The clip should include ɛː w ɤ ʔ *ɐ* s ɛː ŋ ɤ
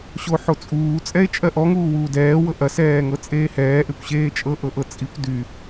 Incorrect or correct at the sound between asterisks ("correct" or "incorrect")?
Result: correct